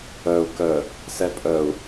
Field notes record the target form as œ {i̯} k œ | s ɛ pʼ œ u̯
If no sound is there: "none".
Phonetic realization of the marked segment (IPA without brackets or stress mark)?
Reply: u̯